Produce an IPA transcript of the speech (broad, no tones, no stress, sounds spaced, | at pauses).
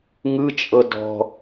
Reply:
ŋ ɯ t͡ʃʼ ɤ d ɔ̤